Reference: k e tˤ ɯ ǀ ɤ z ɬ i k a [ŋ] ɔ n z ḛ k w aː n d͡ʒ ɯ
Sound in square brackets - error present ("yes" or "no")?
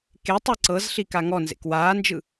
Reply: no